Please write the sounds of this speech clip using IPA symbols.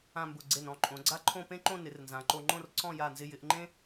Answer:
ã˥˧ m b ʊ˧˩ ɡ͡ǀ e˧˩ n ɔ̃˥˧ ǃʼ õ˩˧ ɡ͡ǀ a˥ ǃʰ õ˥˧ p ẽ˥ ǃ õ˥˧ n ɪ˩˧ r n z ã˩˧ ǃ o˧ ŋ͡ǃ õ˥˧ r ǀ ɔ̃˥˧ j a˧˩ n z ɪ˧ j ɪ˩˧ ʔ ŋ͡ǃ ẽ˥

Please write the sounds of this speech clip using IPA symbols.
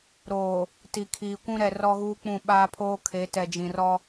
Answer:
ɾ oː˨ | t i˨ kʰ iː˨ kʷ ũ˦ ɾ ɛ˨ r ɔ˦ ɣ uː˦ k͡p ũ˦˨ ɓ aː˦ pʰ oː˦ kʰ e˨˦ t ɛ˨ d͡ʒ ĩ˨ r ɔ˦

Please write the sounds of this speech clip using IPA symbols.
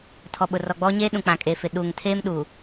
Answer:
tʰ ɔ˨ ɓ ʊ˨ r ɔ˨ ɡ͡b ɔ˦ ɲ eː˦ ɗ ũ˨ k͡p ã˨ kʼ e˨ f ɪ˨ ɗ uː˨ ŋ tʰ eː˦ m ɗ u˨

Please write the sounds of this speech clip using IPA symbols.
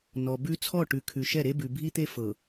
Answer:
n ɔ˨ b ʉ˦ t͡sʰ ɔ˦˨ ʈ ʉ˨ kʰ ʉ˨ ʃ ɛ˦˨ ɾ e˦ b ʉ˨ bʱ i˦ t̪ e˦ f ɤ˨

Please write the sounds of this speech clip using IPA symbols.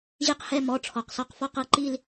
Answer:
ʑ i˦˨ q h ɛ˦˨ m ɔ˩˧˩ ʈ͡ʂʰ ɔ˩ q s ɔ˦˨ q f ɔ˦˨ q ɤ˩˧˩ ǃ i˦˨ l

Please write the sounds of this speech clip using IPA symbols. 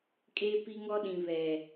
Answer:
kʼ eː˦ p i˦ ŋ ɔ˦ ɗ ĩ˨ β ɛ˨

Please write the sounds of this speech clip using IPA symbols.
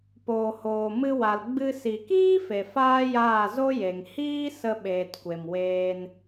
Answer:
p oː˨ h oː˨ m ɨ˧ w a˨ l ɡ͡b ɨ˧ s i˨ k iː˦ f e˨ f aː˦ j aː˦˨ z o˦ j e˨ ŋ h iː˦ s ə˧ ɓ eː˨ t kʷ e˨ m w eː˧ n

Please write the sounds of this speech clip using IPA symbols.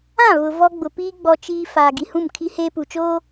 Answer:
ã˦˨ β ʊ˨ v ɔ˦ ɡ͡b ʊ˨ p iː˦ ɡ͡b ɔ˦ t͡ʃ iː˦ f aː˨ ɡ i˨ h ũ˦˨ m kʰ i˦ h eː˦ p u˨ t͡ʃ oː˦

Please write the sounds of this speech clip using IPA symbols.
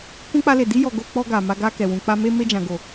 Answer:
k ũ˦ k͡p a˦ l e˧ d i˦ j ɔ˧ ɡ o˧ k͡p ɔ˧ ɡ a˨ m a˧ ɡ a˧ k ɛ˨ w ũ˨ k͡p a˧ m e˧ m e˧ d͡ʒ ã˨ ɡ o˨

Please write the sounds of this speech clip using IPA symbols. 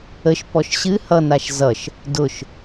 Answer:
ə ʃ p ɔ ʃ ɕ ɨ h ʌ n a ʃ z ʌ ʃ | d ʊ ʃ

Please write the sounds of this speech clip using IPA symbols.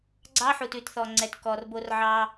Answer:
ɡ͡ǀ ɑ˦ ħ u˨ t ʉ˨ t θ ɔ˨ ŋ͡ǀ ɛ˨ t k ɔ˨ r b o˦ r ʕ ɑ˦

